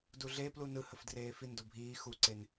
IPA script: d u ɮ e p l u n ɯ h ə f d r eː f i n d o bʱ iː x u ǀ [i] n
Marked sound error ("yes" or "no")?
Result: yes